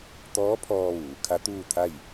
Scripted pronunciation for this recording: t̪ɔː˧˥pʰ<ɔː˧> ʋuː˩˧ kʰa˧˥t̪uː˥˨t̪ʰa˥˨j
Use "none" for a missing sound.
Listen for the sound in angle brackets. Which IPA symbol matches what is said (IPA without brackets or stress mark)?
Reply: ɔː˧